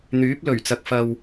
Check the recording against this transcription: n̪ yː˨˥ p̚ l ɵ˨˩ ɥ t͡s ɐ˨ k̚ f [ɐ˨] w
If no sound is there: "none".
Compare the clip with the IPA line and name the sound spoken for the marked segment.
ɐ˨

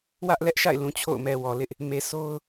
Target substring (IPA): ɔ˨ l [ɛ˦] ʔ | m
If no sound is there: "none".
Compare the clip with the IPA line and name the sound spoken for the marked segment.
ɪ˦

